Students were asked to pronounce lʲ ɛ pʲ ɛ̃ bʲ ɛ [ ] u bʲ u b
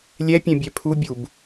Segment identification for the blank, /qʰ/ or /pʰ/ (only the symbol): pʰ